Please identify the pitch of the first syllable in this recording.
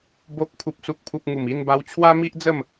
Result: low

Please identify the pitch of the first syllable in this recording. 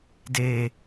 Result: low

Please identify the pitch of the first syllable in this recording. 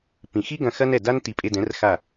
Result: low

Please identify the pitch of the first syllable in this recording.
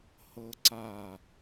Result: high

